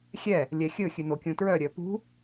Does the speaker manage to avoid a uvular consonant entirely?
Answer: yes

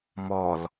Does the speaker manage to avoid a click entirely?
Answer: yes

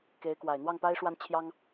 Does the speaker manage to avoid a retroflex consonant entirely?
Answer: no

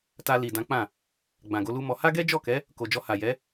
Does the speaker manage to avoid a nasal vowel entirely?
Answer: no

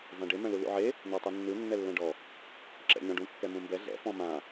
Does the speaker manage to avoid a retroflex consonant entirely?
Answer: no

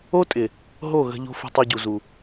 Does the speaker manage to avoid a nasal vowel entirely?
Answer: yes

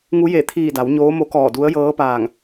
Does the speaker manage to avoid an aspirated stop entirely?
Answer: no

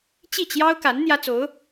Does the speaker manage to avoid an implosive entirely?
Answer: yes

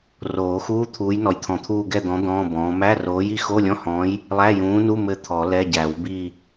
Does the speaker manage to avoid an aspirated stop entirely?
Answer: no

